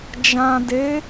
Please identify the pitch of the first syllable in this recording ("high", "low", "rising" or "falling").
low